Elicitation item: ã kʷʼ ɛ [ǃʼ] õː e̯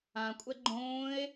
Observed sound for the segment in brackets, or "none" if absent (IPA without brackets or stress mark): ɡ͡ǃ